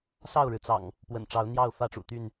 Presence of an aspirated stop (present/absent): absent